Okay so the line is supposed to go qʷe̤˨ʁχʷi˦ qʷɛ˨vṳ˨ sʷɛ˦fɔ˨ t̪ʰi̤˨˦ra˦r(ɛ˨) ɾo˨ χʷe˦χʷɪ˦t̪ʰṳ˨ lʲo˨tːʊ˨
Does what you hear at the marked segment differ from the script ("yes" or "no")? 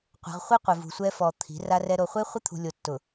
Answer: yes